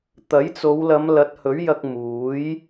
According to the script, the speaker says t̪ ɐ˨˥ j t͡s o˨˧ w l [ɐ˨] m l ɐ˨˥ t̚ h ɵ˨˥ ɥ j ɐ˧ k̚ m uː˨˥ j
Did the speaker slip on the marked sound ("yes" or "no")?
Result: yes